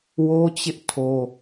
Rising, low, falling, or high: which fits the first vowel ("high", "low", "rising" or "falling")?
high